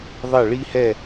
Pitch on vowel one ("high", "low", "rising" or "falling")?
falling